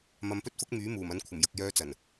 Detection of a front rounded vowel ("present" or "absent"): present